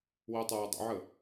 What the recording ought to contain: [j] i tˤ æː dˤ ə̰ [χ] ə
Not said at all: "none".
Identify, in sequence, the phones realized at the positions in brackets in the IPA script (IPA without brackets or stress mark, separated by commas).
w, ʕ